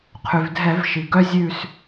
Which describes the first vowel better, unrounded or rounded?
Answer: rounded